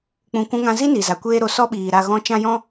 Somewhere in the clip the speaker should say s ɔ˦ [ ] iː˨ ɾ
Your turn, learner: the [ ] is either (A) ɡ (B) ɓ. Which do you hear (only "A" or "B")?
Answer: B